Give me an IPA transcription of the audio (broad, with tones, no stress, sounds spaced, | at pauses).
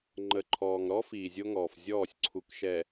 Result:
ŋ͡ǃ ə˨ ǃʰ ɔː˨ ŋ ɾ ɔ˦ f iː˨ zʲ o˦ ŋ ɔː˨ f zʲ ɔː˦˨ sʲ ǀʰ u˨ k ʃ ɛ˨